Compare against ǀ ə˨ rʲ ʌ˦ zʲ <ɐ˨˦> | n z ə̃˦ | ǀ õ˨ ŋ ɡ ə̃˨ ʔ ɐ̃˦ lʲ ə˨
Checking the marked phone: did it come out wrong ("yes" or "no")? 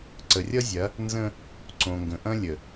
no